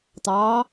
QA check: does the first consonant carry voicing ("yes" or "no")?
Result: no